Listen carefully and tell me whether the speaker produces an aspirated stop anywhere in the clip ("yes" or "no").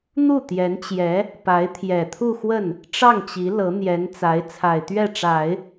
yes